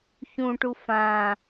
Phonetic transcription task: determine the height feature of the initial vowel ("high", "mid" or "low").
high